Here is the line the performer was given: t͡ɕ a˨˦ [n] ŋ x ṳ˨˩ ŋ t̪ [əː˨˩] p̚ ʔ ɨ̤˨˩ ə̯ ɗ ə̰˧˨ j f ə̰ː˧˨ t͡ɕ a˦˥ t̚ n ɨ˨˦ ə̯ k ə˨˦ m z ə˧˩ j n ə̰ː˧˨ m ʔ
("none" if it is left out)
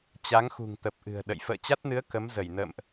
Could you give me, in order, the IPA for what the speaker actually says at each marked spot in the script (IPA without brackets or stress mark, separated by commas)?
none, ə˨˩